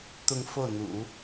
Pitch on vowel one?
falling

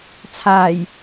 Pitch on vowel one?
low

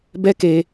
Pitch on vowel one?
high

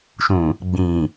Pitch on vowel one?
low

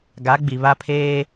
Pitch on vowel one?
rising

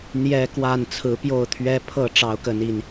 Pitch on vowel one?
high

